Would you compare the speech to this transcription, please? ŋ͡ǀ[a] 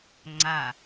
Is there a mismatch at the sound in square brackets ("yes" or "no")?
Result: no